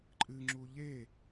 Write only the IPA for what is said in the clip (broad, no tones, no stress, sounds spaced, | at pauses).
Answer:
ǃʼ ɨ ŋ͡ǁ u ʎ e